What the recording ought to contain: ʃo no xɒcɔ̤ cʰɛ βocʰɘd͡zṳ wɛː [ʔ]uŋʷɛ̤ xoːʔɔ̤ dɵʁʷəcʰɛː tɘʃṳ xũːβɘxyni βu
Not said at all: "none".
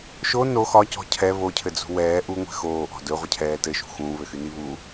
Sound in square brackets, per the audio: ʔ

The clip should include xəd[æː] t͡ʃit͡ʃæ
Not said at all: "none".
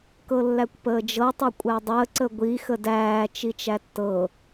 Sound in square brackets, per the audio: æː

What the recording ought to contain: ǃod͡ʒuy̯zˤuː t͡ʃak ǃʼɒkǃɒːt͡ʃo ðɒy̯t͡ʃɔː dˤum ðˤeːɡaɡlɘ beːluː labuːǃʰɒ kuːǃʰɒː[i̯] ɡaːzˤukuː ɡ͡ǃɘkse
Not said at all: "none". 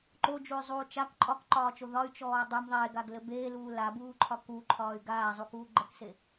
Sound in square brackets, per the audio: y̯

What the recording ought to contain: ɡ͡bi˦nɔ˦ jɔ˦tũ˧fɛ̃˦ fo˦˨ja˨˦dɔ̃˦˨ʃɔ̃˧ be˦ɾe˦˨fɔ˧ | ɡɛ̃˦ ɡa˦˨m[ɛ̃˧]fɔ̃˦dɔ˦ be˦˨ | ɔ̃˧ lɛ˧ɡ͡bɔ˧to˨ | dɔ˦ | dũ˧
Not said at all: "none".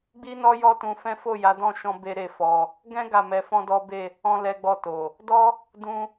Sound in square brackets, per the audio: ɛ˧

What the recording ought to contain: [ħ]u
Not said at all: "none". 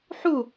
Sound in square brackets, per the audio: ħ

